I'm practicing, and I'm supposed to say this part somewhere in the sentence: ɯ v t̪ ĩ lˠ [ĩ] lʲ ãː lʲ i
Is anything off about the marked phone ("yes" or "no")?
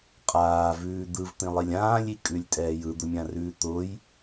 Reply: yes